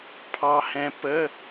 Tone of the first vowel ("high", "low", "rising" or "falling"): low